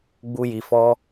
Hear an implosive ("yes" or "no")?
no